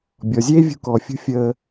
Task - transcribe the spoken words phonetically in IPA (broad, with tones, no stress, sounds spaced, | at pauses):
bʲ ɔ˩ zʲ eː˥ vʲ ṳ˧ k ɔː˩ fʲ ṳ˧ fʲ əː˧